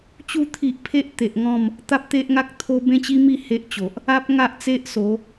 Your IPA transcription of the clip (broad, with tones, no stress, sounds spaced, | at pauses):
t͡ɕ u˧ t̪ʰ i˨ ʔ pʰ e˦ ʔ t̪ e˨ ʔ ŋ ɔ̃˥˧ m | t̪ a˦ p̚ t̪ e˦ ʔ ŋ a˦ k̚ t̪ʰ o˦ b ẽ˦ t͡ɕ i˦ m i˥˧ h e˦ ʔ t͡ɕ o˨ ʔ | a˦ p̚ ŋ a˦ ʔ t͡s e˦ ʔ s o˨˦